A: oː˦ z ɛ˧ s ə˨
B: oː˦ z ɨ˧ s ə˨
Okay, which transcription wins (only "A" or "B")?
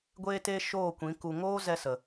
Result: A